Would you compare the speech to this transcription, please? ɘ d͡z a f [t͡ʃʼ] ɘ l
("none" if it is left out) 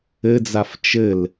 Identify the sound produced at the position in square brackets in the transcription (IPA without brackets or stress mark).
t͡ʃ